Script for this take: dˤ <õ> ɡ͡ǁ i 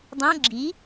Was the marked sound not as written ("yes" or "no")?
no